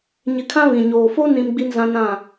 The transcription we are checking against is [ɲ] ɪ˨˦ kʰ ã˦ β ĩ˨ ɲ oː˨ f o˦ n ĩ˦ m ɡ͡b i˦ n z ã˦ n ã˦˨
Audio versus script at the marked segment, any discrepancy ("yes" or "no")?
no